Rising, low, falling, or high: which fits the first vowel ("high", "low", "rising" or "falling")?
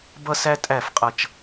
high